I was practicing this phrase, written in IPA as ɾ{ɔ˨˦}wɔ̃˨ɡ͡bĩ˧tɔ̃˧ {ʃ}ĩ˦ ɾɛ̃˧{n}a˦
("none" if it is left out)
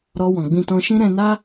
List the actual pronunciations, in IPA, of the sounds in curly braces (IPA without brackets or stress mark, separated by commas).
ɔ˧, ʃ, n